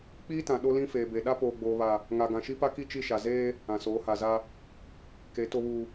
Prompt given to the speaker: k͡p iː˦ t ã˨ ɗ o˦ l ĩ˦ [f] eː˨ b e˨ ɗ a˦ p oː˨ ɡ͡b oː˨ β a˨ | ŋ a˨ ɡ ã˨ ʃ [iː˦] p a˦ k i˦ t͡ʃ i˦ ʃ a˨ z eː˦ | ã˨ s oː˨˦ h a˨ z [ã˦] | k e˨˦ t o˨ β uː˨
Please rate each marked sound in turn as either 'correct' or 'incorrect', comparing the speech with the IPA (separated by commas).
correct, incorrect, incorrect